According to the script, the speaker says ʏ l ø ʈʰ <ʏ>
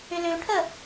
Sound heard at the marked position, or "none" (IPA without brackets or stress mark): ə